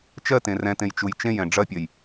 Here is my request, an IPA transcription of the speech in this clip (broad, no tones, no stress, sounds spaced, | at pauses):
t͡ʃ ɜ t ẽ r ɛ̃ t ẽ j t͡ʃ u j t͡ʃ ẽ j ɛ̃ ɖ͡ʐ ɐ pʲ ɜ j